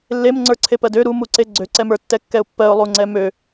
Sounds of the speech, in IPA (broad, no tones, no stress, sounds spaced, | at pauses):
lː e m ŋ͡ǀ ə˞ ǀʰ e p ɜ d ø ɾ u m u ǀ e ɡ͡ǀ ø ǀ ɛ m ə˞ tː ɛ kː ɛ ʊ̯ pː ɜ ʊ̯ lˠ u ŋ͡ǀ ɛ m ø